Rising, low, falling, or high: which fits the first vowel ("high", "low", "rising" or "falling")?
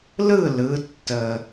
falling